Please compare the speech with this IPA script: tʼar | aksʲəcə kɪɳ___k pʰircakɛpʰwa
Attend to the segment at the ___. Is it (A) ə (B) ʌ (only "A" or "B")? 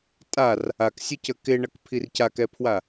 B